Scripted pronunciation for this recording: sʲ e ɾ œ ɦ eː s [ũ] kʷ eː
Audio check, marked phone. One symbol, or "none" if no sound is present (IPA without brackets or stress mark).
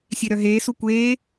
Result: u